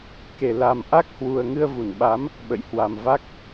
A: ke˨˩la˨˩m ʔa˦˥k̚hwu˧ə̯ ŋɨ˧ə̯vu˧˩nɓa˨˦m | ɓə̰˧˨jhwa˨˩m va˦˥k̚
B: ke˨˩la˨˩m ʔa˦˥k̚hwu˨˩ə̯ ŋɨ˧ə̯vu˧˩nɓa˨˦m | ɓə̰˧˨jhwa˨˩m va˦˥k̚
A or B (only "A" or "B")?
B